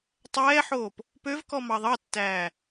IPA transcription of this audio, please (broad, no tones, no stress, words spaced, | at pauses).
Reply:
tˤɛːħoːp | pøvkɔ mɑðˤɑtːæː